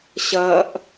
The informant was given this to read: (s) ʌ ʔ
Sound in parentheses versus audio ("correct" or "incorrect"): incorrect